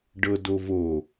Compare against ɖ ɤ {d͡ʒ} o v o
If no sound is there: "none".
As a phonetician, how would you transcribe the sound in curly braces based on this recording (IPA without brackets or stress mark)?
d